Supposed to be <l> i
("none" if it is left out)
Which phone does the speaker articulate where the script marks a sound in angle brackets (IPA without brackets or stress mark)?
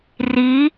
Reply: r